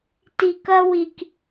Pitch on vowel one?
low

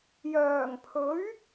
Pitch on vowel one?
low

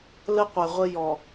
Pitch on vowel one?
high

